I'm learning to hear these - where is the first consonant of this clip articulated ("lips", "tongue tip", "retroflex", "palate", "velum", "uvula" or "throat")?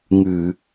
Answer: velum